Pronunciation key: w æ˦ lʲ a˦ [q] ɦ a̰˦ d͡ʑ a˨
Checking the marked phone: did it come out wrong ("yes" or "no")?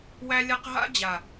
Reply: no